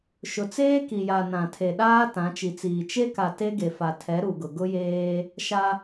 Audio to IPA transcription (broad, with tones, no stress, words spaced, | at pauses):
ʃʊ˨t͡seː˦ ki˨ja˨ nã˨tʰe˨ɗaː˦ tã˨˦t͡ʃi˨t͡siː˨ t͡ʃe˦ka˨ te˦ɡe˨fa˨ tʰɛ˨˦ ɾu˨ɡʊ˨ ɡʊ˦jeː˦ | ʃa˦